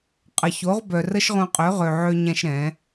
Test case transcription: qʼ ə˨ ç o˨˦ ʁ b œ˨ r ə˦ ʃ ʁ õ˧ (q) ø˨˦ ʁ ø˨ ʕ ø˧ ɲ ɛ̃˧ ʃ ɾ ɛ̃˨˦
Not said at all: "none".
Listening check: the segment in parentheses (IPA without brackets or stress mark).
qʼ